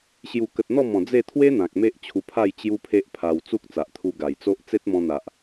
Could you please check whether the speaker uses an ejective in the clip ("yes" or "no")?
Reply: no